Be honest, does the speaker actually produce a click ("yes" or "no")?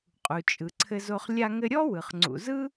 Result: yes